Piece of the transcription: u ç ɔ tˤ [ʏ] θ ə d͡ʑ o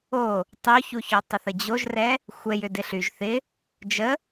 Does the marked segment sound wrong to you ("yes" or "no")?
yes